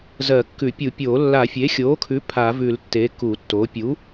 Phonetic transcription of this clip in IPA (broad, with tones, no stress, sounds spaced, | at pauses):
z ɜ˨˩˦ kː ʉ˨˩˦ pʲ u˨˩˦ pʲ oː˨˩˦ lː a˨˩˦ fʲ e˩˥ xʲ oː˩˥ kʰ ʉ˩˥ pʰ a˨˩˦ v ʉ˨˩˦ l tː e˩˥ k u˨˩˦ tː o˩˥ pʲ u˩˥